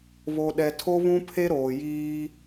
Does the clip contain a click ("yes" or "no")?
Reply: no